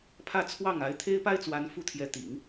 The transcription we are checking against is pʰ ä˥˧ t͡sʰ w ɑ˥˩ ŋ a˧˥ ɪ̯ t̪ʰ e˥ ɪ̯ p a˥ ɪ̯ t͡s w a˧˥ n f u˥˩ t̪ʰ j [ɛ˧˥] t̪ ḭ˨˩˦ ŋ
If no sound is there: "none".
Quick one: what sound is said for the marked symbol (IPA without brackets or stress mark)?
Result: ɛ˧˥